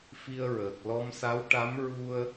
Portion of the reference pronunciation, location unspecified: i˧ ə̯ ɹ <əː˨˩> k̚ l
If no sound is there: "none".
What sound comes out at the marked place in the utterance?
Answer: əː˨˩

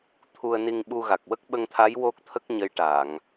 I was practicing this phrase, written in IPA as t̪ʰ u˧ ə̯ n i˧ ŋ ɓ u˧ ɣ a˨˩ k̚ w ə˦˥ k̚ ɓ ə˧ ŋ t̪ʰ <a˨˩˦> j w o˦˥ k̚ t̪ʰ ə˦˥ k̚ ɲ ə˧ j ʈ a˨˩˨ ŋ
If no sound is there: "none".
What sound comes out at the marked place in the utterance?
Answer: a˧˥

